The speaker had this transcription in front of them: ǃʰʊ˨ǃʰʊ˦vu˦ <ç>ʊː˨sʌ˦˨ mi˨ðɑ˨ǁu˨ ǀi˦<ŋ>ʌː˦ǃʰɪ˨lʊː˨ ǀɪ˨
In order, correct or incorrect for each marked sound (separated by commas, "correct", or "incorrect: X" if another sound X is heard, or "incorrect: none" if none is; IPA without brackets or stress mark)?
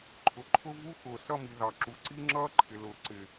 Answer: incorrect: x, incorrect: ŋ͡ǁ